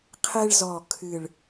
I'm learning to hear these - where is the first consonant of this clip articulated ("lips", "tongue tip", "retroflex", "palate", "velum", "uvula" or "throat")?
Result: uvula